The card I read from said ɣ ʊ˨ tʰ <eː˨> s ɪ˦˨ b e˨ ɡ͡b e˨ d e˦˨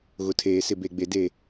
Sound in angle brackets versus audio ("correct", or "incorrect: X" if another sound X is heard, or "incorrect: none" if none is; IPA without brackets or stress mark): correct